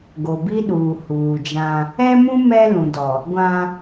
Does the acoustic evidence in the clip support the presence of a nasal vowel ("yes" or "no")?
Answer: yes